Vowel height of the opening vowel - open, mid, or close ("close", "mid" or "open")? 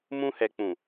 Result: close